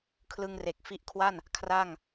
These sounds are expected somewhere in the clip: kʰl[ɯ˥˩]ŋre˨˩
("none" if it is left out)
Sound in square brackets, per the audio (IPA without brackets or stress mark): ɯ˧